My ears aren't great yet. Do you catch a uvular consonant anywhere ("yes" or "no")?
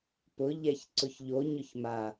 no